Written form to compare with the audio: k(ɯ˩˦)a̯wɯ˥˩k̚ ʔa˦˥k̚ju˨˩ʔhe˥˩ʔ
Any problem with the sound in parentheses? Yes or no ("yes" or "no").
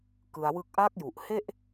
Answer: yes